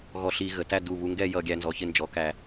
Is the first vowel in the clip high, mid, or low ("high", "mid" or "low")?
mid